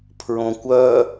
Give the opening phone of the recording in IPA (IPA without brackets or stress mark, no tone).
pʰ